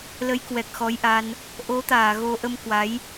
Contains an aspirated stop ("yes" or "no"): no